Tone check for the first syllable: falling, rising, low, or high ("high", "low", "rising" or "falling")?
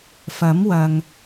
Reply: rising